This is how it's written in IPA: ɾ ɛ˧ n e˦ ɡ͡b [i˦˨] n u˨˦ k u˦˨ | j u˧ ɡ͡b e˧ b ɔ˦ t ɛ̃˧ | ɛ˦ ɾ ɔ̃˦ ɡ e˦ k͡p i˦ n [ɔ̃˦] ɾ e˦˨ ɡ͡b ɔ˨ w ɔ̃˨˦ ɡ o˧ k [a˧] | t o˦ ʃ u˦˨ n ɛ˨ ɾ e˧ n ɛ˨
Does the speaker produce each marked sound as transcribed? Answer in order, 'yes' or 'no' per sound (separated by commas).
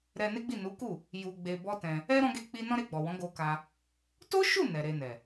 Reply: yes, yes, yes